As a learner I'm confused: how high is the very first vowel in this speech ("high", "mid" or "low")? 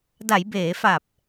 low